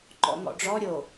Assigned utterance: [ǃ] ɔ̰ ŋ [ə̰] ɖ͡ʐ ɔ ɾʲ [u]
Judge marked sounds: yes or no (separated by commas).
yes, no, no